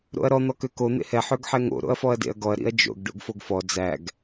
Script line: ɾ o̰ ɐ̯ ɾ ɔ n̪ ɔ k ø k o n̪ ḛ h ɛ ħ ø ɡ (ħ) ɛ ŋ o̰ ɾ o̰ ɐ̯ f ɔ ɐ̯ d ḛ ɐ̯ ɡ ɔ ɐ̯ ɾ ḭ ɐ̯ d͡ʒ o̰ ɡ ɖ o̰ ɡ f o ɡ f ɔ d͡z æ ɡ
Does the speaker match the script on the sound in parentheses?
yes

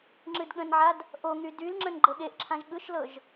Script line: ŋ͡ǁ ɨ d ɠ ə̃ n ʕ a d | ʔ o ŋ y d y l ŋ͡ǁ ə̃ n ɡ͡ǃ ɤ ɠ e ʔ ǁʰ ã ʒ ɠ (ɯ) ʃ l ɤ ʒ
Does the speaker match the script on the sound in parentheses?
yes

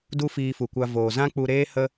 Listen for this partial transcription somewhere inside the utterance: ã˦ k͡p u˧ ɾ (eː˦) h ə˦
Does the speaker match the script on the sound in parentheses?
yes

